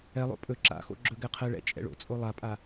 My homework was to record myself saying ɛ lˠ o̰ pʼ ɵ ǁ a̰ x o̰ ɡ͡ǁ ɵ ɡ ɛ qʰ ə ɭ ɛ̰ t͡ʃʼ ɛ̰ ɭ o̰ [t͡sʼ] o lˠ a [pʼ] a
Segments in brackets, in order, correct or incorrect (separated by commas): correct, correct